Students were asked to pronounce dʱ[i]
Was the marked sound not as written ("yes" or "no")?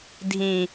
yes